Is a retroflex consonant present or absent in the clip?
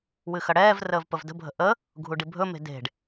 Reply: present